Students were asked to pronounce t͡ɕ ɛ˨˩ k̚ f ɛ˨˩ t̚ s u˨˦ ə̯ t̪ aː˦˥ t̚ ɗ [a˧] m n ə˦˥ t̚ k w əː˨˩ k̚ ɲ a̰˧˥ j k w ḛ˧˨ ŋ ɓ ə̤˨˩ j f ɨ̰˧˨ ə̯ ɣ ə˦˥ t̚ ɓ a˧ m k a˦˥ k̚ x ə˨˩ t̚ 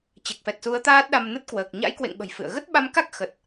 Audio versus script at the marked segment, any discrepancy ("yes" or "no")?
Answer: no